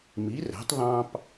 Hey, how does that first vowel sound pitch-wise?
rising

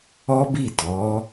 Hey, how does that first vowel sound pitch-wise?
high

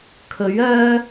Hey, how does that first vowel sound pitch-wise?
rising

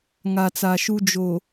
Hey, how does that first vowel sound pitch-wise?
low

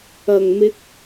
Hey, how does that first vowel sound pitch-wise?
low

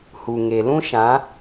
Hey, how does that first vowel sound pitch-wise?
low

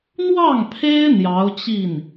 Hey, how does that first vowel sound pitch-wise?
falling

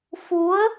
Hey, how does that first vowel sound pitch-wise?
rising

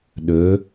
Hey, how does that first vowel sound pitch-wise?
rising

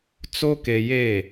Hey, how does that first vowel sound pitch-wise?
high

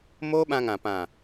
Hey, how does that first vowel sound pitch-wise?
high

